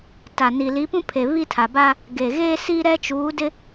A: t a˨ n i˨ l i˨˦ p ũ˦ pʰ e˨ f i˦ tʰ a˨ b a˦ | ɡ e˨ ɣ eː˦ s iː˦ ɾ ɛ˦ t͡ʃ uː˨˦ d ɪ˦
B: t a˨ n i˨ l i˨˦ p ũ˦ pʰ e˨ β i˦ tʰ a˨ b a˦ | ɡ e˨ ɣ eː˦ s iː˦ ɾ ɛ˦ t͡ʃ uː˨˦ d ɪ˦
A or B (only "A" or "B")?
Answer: B